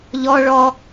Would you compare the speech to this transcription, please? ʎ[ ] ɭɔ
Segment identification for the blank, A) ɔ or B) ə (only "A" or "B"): A